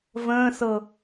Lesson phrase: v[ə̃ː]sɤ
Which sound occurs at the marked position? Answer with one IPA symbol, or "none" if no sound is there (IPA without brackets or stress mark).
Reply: ə̃ː